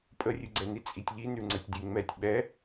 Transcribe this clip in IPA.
pʼ ə rʲ ʉ ɡ͡ǀ ɛ n i t͡sʼ i tʲ ʎ i n ʉ ŋ͡ǀ ə tʲ dʲ e ŋ͡m ɛ tʲ ɓ ɛ

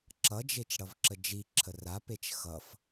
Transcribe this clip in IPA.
ǁ ʌ d͡ʒ e t͡ʃ ɽ ʌ v ǁ ə d͡ʒ i ǁʰ ə r a p e t͡ʃ x ʌ f

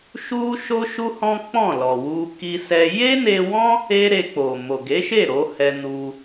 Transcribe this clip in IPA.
ʃ u˦ ʃ o˦ ʃ u˦ h ɔ̃˦ k͡p ɔ̃˦˨ l ɔ˨ w u˧ k i˦ s ɛ˦ j e˦ n e˧ w ɔ̃˦ | e˦ ɾ e˧ k͡p o˨ m o˨ ɡ e˨˦ ʃ e˦˨ ɾ o˨˦ h ɛ˧ n u˧

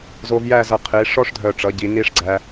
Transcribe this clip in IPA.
z o˧ v j æ˥˧ z ʌ˧˩ qʰ i˩˧ ʂ ɔ˥ ʂ dʱ œ˧˩ ʈ͡ʂ ʌ˩˧ ɟ i˩˧ n i˥˧ ʂ ɡ͡ǀ æ˧

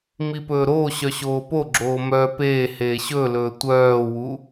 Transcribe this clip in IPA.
m i p ɵː ɾ oː ɕ œ ɕ oː p o ɡ͡ǁ oː m œ p eː h eː ɕ ɵ l ɵː tʷ œː w u

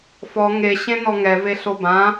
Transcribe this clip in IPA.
f ɔ ŋ e ɕ ẽ n ɔ ŋ ɛ v e ɬ o b ã

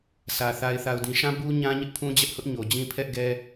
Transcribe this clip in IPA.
sʰ ä˨ θ a˨ ɪ̯ θ a˨ ʊ̯ d ĩ˨ ʃ ã˦ b u˦ ɲ ã˦ ɲ ɪ˦ ʔ pʰ ũ˦ d͡ʑ ɛ˦ ʔ h ʊ˦ ʔ ɲ o˨ d͡ʑ ĩ˦ pʰ ɛ˦ ʔ ɡ ɛ˦

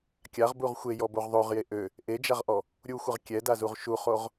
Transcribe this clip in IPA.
kʲ a ʁ b u ʁ xʷ e j ɔ b o ʁ ðˤ o ʁ j e ʔ ø | ʔ e d͡ʒ a ʁ ʔ ɔ | ɾʲ u xʷ ə ʁ kʲ ɛ d a z u ʁ ʃ u χ o ʁ

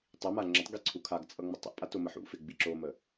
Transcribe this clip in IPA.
tˤ i m a ŋ͡ǁ ə tˤ ɡ i ǀʰ u kʰ a ɡ t͡sʼ ʌ ŋ͡m ə tˤ ḭ ʔ pʼ a t o m ə ħ ṵ f ɪ ɡ͡b i ǁ o m ə

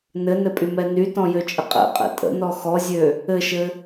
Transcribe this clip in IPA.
n ɘ n ɘ pʼ y m ɛ n y t ɔ̃ j ø t͡ʃʼ ə qʼ ɛ̰ qʼ ɛ̰ tʼ ə̰ n ɔ x ɔ zʲ ø | ɘ ʃ ɘ

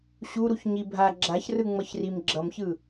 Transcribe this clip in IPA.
ɕ u ɾ u ç ɲ i bʱ a ɡ͡ǁ a ç r ɯ ŋ͡m ʌ ç r i m ɡ͡ǁ ʌ m ç ɯ

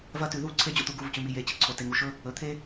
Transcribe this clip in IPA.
v ɐ˦ t ʉ˨ ð u˦˨ ǀʰ e˦ d͡ʑ o̰˦ t̪ u˨ ɡ u˦˨ v c ʉ˨ m i˨ j e˨ t͡ɕ i˨ ǀʰ o˨ t e˨ ŋ u˨ ʃ ɵ˦ | ɵ˨ t̪ʰ e˦

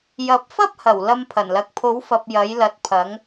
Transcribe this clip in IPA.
j ɐ˨˥ p̚ f ɐ˥ p̚ h ɐ˨˩ w l ɐ˧ m pʰ ɐ˨˩ n l ɐ˨˥ k̚ pʰ o˨˥ w f ɐ˨ p̚ j ɐ˨˥ j l ɐ˨ t̚ pʰ ɐ˨˥ ŋ

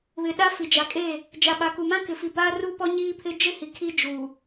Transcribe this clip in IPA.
β ɪ˨ ɗ a˦ f i˨ d͡ʒ a˨ kʼ e˦˨ | d͡ʒ a˨ ɓ a˨ k u˨ m ã˦ k ɪ˨ f i˨ b aː˦ r u˦ p ɔ˦ ɲ iː˦ pʰ ɪ˦ d͡ʒ ɪ˦ h i˨ kʰ i˦ d͡ʒ u˨

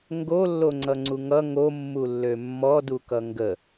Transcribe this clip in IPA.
ŋ ɡ o lː o ŋ͡ǀ ʌ ŋ͡ǀ u ŋ ʌ ŋ o mː u lː ø mː ɔ d u k ʌ ŋ ɡ ə

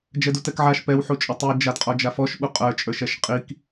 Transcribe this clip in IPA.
d͡ʒ ɛ d u t ɛ k ʕ a ʃ p ɛ w ħ u t͡ʃʼ ʊ tˤ i d͡ʒ a d qʼ ɔ d͡ʒ a f ɔ ʃ ɓ u qʼ ə˞ t͡ʃʼ ə˞ ʃ ɛ ʃ qʼ i k

